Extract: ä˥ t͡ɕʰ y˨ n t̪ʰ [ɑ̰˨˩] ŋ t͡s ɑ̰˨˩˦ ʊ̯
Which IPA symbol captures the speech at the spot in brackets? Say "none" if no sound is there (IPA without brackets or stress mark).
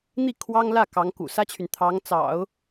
ɑ˧˥